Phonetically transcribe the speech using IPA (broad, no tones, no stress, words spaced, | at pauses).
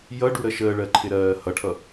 jʌɖuɾə ʃəːɭɜǃʰɪɾɜː hʌʈʰʌ